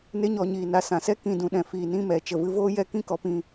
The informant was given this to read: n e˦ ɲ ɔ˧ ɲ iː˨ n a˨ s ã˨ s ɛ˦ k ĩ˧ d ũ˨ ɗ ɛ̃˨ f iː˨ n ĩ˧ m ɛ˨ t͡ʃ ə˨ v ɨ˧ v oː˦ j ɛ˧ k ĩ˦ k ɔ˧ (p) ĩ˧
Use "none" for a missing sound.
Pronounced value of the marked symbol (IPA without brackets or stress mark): p